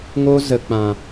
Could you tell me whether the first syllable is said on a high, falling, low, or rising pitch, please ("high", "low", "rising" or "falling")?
high